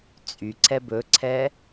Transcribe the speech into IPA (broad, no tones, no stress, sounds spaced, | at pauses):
t͡sʼ y ǀ ɛ b ɵ ǀʰ ɛ